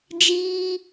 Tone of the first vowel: high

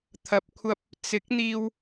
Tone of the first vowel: low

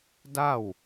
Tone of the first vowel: falling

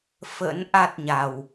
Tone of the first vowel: rising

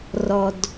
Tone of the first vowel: low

